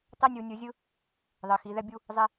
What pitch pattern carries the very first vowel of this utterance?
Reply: high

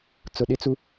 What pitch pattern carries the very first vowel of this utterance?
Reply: low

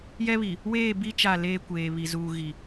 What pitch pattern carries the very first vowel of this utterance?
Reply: high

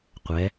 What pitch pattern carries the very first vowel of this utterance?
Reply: rising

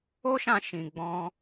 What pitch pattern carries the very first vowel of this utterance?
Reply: high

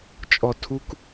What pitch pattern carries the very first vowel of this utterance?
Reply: low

